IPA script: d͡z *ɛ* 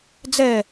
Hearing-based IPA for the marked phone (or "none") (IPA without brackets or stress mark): ɛ